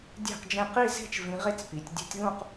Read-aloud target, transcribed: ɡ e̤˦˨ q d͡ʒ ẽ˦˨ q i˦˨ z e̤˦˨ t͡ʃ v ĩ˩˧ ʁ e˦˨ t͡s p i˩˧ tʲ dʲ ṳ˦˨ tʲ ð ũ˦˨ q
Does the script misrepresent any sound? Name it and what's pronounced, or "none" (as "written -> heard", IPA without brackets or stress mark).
ɡ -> dʲ